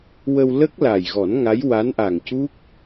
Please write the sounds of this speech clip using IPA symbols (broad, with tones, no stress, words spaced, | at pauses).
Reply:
wə˧w lə˦˥k̚la˨˩jɣɔ˨˩˦n ŋa˧˥jwa˧˥nʔa˨˩ŋcu˦˥k̚